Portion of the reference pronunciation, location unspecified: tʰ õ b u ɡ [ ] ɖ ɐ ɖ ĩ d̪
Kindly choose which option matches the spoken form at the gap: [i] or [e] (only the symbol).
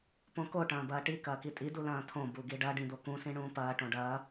i